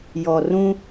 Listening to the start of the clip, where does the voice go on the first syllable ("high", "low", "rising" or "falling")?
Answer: low